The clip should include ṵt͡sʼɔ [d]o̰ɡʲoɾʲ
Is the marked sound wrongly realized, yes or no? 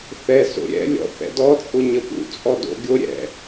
no